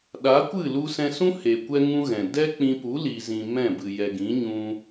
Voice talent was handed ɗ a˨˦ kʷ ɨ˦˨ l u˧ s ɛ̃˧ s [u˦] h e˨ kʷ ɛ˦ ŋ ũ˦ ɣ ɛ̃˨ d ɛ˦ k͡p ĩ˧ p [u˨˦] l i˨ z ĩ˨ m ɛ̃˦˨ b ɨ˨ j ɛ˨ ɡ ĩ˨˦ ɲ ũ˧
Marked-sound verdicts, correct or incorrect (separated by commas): incorrect, correct